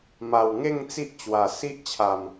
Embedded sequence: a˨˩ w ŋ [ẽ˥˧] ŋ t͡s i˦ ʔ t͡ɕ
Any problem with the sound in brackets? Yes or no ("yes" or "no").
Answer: yes